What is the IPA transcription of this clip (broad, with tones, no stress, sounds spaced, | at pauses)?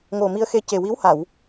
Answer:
ŋ o˨˩ m i˧ ə̯ x e˧ c e˨˩ w i˧˥ w h a˨˩˨ w